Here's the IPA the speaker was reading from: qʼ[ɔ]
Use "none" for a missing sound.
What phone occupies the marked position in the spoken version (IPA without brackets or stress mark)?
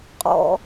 ɔ̰